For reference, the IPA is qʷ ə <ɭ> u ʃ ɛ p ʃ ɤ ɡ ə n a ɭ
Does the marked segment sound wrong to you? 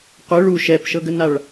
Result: no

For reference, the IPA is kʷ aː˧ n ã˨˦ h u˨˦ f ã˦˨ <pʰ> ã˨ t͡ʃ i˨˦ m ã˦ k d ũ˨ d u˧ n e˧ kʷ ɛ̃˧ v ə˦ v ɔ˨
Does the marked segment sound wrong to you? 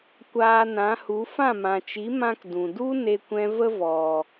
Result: yes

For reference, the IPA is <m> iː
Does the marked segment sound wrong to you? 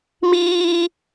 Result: no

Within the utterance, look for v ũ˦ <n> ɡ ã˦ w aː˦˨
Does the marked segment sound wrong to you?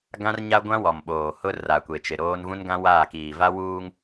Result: no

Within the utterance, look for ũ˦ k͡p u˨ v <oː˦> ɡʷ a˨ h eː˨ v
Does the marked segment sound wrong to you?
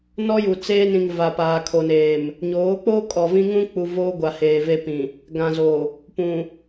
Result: no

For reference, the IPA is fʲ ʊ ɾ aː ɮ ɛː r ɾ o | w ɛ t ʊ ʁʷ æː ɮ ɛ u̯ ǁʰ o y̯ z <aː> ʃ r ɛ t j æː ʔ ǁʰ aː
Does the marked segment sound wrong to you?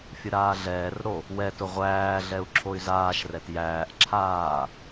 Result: no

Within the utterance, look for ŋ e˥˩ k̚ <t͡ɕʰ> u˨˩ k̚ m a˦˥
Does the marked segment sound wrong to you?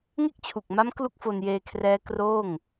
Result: no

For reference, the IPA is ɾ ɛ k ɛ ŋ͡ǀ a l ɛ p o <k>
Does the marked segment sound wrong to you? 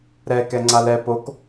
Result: no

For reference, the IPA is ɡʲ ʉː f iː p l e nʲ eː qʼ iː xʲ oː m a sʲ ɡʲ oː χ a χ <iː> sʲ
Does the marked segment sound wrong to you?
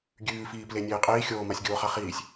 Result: no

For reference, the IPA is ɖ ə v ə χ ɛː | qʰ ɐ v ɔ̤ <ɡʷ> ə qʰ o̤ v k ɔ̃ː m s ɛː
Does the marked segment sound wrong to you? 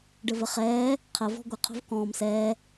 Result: no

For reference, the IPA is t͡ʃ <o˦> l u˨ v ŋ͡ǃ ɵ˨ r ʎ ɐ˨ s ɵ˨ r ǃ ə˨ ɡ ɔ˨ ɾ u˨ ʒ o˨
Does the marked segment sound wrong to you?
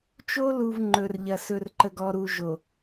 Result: no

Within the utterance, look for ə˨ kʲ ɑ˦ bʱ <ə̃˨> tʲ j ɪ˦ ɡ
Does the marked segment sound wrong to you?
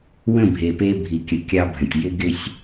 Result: no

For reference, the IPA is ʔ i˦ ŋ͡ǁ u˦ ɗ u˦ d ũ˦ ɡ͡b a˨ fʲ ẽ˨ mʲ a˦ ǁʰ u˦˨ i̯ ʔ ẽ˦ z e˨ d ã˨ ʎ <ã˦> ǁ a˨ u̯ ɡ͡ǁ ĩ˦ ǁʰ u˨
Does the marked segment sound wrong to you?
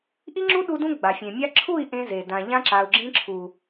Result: no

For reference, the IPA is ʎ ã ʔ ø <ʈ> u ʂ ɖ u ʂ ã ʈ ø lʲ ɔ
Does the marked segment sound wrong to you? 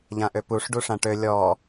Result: yes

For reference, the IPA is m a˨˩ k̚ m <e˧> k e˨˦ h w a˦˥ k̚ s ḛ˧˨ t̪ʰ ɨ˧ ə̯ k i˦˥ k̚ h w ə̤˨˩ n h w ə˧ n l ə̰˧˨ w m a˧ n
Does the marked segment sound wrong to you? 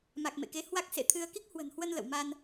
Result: yes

